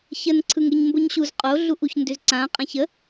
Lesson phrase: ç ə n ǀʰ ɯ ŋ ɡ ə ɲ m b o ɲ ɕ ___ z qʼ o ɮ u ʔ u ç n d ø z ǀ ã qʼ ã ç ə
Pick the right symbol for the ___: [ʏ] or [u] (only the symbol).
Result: u